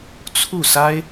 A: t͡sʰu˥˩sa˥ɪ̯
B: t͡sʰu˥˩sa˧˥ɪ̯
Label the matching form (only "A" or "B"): A